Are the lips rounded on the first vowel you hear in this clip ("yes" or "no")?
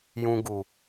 yes